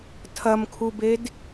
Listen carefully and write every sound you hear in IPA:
tʰ ɐ m kʰ u b e d

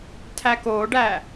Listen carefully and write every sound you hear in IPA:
tʰ æ k o ɖ æ

